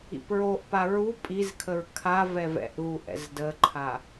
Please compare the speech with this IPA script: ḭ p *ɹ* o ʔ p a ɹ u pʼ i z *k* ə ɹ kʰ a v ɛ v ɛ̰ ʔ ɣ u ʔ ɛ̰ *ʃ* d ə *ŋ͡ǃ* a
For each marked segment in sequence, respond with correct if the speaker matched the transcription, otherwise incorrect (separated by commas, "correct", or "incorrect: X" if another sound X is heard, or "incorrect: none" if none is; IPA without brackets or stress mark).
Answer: correct, incorrect: kʰ, incorrect: z, incorrect: ǃʰ